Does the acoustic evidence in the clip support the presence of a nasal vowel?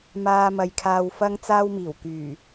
no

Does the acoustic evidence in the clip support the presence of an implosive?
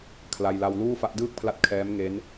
no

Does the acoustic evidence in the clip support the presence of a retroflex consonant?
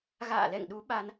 no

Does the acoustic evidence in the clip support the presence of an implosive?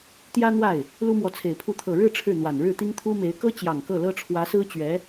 no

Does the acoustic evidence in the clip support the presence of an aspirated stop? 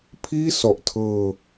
yes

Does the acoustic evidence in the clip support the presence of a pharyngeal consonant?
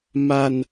no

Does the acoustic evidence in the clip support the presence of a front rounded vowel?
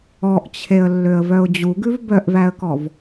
yes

